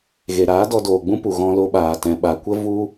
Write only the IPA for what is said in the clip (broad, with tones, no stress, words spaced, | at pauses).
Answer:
ɣe˨ɾaː˨˦dɔ˧ doː˨ɡ͡bũ˦pu˨ ɣɔ̃˧ lo˧ɓaː˨ tɛ̃˨ɓa˨kʷə˦ vu˦